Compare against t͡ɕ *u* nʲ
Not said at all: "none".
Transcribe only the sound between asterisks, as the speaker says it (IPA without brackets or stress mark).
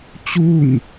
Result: u